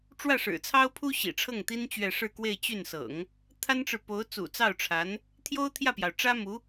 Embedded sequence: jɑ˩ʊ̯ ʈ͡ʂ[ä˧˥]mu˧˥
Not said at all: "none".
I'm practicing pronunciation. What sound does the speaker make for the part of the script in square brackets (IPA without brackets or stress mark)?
ä˥